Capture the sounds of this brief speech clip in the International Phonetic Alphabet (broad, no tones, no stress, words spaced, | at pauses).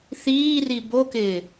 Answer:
θiːri bokɪː